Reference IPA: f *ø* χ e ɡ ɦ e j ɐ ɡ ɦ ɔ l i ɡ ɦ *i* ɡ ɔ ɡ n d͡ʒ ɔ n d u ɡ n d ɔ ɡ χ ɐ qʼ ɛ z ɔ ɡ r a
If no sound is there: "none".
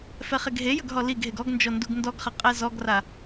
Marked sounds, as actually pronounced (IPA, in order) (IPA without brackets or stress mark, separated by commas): ɛ, e